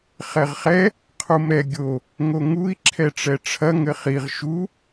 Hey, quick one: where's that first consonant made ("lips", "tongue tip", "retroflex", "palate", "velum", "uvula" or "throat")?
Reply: uvula